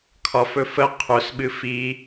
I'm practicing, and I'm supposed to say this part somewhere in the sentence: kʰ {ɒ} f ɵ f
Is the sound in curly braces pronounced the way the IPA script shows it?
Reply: yes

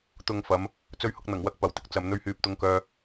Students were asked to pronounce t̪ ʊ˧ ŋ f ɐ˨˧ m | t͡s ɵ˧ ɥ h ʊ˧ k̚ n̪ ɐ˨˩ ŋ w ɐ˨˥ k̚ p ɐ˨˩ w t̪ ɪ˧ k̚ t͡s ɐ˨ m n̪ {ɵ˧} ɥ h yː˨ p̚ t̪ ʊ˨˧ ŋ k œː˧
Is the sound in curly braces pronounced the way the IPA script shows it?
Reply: no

